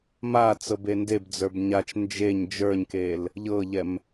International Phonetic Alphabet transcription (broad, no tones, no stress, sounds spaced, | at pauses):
m a t͡s ɤ b e n d e b d͡z ə˞ b ɲ a t͡ʃ n d͡ʒ e ɲ d͡ʒ ə˞ ɲ k e l | ʎ ɤ ʎ ɛ m